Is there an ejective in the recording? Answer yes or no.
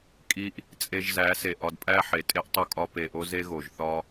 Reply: yes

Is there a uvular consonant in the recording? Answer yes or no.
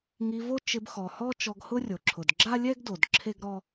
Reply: no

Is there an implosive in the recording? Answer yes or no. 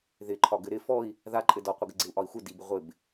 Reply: no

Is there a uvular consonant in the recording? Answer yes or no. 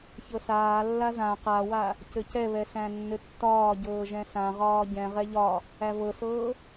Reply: yes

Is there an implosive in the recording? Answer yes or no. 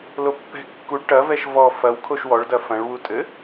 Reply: no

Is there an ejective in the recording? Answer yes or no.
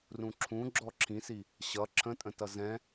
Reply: yes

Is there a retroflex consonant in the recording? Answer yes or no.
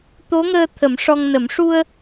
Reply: yes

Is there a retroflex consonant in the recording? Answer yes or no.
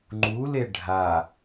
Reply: yes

